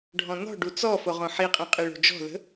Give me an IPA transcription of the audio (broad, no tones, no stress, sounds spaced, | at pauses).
ɖʱ ɔ̃ n ɔ̤ ɖ u t͡s ɔ f o ʁ õ ħ i qʼ ĩ qʼ i ɭ o̤ d͡ʒ ɔ̤ ð ə̤